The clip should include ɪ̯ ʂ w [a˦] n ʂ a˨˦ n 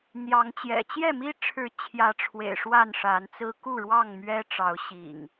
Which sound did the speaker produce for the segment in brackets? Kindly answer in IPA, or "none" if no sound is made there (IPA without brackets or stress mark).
a˥˨